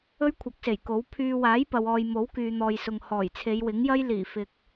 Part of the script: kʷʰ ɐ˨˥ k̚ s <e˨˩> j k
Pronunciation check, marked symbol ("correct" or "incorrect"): correct